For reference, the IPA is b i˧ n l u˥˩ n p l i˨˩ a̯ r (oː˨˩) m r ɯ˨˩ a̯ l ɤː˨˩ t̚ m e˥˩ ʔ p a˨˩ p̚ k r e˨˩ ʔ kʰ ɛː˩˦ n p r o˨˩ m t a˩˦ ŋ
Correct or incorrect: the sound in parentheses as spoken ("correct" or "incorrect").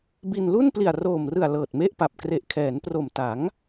correct